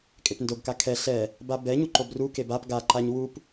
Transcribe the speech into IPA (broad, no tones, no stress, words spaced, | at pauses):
kʼepndoɡka kʰɛ ɬɛ | babɛɲu ǃobrukeb ap ɡaǃaɲ wup